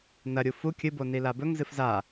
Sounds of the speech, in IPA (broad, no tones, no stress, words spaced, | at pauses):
nɐ ɾʲufu kʲɨ bonilabɵŋ zɨfza